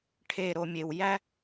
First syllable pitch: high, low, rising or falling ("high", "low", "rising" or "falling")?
low